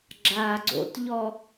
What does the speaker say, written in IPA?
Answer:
ɡ͡ǁ aː ɡ͡ǀ o̰ t ʎ ɔ

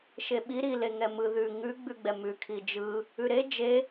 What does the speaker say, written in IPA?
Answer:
ʃ e ɓ i ɾ i l e ŋ ɛ m ɯ ð ʉ ŋ ʉ ɡ͡b ʉ ɡ͡b ɛ m ʉ kʰ i d͡ʒ ɯ | ʉ ɾ e d͡ʒ e

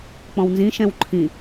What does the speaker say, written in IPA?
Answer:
k͡p ɔ̃ w n z ĩ ʃ ɛ̃ w ǃʰ ĩ

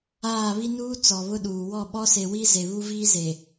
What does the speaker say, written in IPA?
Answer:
aː˦˨ β i˦ n uː˦ t͡s ɔ˨ β ʊ˦ ɗ uː˨ w ɔ˦˨ ɓ ɔ˦ s e˨ w i˦ z e˨ β u˦ v iː˦ z e˨

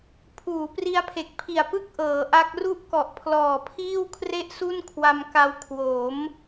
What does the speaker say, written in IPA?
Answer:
pʰ uː˩˦ p r i˦˥ a̯ pʰ e˨˩ k̚ pʰ i˨˩ a̯ p ɯ˥˩ k̚ ʔ ɤː˩˦ ʔ a˦˥ k̚ r u˥˩ ʔ k ɔ˨˩ ʔ pʰ l ɔː˨˩ pʰ iː˥˩ w kʰ r e˥˩ ʔ s u˥˩ n kʰ w a˧ m k a˧ w kʰ w o˩˦ m

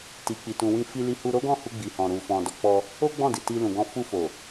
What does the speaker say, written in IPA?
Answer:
t i˨ k͡p i˨ t ũ˨ w ĩ˧ f i˧ l i˧ h u˧ ɾ o˦ ɡ ɔ̃˦˨ h u˧ ɡ͡b i˨ h ɔ̃˨ ɾ u˨ f ɔ̃˨ d ɔ˨ k͡p ɔ˧ | o˦ ɡ͡b ɔ̃˦˨ d i˨ t i˧ l ũ˨ ɡ ɔ̃˧ f u˧ f o˨

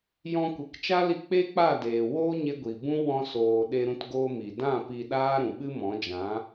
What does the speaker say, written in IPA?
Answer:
j ɔ̃˧ kʷ e˨ k t͡ʃ a˦ l i˧ k͡p e˦ k͡p a˦˨ d eː˨ w oː˦ ɲ e˧ ɡʷ i˨ b ũ˦ w ɔ̃˧ s oː˨ ɗ e˧ ɾ ũ˧ t ɡ oː˧ m i˨ d ã˦˨ p i˧ ɗ aː˦ ɾ ũ˨ ɓ ɨ˦ m ɔ̃˨˦ d͡ʒ ã˨˦

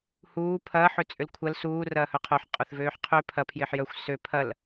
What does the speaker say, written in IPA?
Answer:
h uː pʰ ɐː ħ ø t͡sʼ ʏ l kʷʰ ɐ l s uː r ɐː h œ qʰ o ħ qʼ œ θ v øː ħ qʰ ø pʰ ɐ pʰ j ɪː ħ j œ xʷ s ø pʰ ɐ l

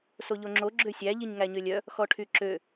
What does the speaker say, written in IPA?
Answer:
s o ʎ o ŋ͡ǁ o ɡ͡ǁ ø sʲ æ ʎ i ɲ ŋ æ ɲ ø lʲ œ | x ɔ ʈʰ y ǁ ø

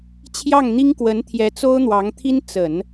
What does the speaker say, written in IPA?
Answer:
t͡ɕʰ j ɑ˥˩ ŋ n̪ i˥ ŋ k w ə˧˥ n t̪ʰ j ɛ˧˥ t͡s o˥ ʊ̯ n̪ w ɑ˧˥ ŋ t̪ʰ i˥ n t͡s ə˨˩˦ n

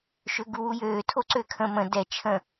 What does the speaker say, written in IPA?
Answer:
ʃ ø ɡ u w u j øː tʰ o ǀ ø kʰ ə̃ m ə̃ d ɛ t͡ʃʰ ə̃

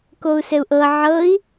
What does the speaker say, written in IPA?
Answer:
k o u̯ s ɘ u̯ ʔ ɤ ʕ ɤ i̯

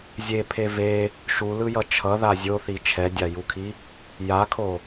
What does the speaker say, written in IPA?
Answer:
zʲ e pʰ e v e | ʃ u l ɯ j ʌ t͡ʃʰ ʌ ð a zʲ o θ i t͡ʃʰ ɛ dʲ a j u kʰ i | j a kʰ o

